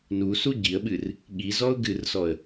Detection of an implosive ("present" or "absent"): present